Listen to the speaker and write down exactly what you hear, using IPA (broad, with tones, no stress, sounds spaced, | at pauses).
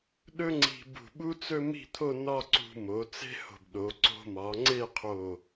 ɗ ɵ˥ ŋ͡ǀ i̤˧ b ṳ˧˩ ɓ u˥ t͡s ɵ˥ m i̤˥˧ t̪ʰ o˥˧ n ɒ˥˧ ǀ ṳ˧ m o˩˧ t͡s e̤˥ h o̤˧˩ b ɗ o˩˧ ǀ o̤˧ m ɒ˩˧ ŋ͡ǀ e˥˧ qʰ o˧˩